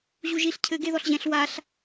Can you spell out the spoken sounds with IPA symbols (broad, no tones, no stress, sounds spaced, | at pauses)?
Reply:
ʑ u ʒ i ɬ cʰ ɘ ɡ e ð ɔ ɬ ʑ ɛ̃ ɬ w a ɬ